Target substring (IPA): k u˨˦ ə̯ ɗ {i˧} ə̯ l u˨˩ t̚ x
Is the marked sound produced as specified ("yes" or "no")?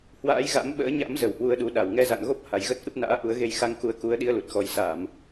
yes